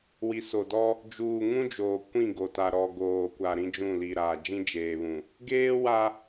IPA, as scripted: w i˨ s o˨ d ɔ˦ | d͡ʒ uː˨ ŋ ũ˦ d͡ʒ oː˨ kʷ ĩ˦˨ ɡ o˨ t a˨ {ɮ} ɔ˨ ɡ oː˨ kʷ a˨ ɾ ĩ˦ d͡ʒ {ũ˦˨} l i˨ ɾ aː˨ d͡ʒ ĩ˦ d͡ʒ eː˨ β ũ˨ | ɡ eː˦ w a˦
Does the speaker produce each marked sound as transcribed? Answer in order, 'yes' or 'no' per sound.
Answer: no, yes

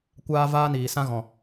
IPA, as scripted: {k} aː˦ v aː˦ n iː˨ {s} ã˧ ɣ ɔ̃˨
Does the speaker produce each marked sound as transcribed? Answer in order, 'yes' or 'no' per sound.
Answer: no, yes

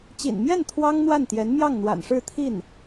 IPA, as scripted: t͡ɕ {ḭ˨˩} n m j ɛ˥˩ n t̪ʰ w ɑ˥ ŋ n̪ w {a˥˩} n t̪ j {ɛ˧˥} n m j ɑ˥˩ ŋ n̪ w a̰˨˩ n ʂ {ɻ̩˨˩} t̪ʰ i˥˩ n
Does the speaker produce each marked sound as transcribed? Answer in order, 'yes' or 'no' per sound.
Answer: yes, yes, yes, no

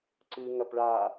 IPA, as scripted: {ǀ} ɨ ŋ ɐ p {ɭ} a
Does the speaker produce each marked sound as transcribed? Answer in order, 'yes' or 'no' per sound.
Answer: yes, yes

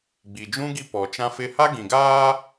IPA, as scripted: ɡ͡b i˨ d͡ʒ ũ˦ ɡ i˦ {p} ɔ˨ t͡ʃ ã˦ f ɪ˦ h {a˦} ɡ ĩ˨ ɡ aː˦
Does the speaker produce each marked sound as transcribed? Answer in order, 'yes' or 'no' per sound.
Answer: yes, yes

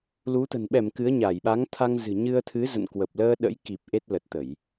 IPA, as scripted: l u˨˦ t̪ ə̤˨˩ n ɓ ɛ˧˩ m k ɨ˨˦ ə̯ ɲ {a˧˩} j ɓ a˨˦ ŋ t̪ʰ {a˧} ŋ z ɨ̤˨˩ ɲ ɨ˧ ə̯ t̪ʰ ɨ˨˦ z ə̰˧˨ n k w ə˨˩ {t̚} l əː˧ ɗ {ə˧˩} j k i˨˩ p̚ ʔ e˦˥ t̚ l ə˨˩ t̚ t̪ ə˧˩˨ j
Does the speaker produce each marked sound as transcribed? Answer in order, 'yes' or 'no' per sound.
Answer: yes, yes, no, no

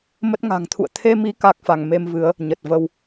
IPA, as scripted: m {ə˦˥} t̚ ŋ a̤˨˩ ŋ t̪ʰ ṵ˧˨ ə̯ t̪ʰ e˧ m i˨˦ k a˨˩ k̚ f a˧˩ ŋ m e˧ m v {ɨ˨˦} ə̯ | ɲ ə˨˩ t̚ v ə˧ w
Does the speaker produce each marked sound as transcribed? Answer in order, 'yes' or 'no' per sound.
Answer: yes, yes

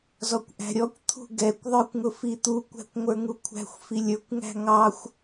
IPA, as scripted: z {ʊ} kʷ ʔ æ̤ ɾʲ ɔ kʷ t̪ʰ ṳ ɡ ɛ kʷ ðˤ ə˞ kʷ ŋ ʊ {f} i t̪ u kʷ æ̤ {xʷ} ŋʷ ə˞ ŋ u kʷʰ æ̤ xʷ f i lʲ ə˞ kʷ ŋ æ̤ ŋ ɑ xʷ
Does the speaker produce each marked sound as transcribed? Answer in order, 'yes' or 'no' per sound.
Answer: no, yes, no

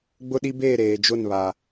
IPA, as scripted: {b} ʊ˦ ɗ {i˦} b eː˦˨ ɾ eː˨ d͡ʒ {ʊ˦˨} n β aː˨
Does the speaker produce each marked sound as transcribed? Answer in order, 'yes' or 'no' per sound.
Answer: no, yes, yes

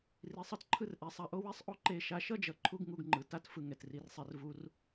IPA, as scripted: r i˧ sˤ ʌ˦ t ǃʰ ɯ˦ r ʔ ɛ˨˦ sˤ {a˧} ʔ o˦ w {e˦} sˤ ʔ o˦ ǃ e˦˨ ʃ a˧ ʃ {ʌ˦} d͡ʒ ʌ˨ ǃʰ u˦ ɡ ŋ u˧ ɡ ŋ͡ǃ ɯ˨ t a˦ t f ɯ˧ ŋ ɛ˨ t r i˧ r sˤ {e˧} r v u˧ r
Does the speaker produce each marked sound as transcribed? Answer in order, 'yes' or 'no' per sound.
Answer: yes, no, yes, yes

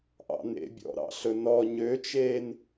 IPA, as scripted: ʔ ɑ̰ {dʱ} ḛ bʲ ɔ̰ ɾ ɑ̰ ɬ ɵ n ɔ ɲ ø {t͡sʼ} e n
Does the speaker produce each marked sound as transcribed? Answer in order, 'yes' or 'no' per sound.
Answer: no, no

